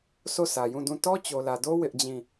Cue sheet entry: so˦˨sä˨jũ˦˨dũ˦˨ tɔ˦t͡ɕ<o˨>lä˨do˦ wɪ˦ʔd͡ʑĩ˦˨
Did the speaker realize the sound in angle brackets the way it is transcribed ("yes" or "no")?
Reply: yes